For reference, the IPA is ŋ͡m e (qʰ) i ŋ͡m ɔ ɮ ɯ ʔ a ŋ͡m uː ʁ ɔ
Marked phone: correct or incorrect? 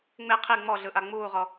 correct